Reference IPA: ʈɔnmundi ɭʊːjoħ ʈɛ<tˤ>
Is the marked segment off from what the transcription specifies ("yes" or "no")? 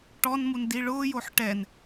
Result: yes